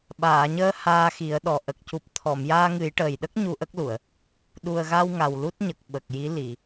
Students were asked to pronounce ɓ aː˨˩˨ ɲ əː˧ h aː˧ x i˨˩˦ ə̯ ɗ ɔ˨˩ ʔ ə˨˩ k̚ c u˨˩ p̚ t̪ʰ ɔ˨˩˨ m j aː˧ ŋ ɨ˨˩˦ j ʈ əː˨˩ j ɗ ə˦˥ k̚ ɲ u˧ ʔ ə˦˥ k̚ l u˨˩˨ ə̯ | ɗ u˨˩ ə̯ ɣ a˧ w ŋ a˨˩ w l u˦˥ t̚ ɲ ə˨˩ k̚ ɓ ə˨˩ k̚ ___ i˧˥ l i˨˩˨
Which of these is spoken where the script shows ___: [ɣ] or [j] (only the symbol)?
j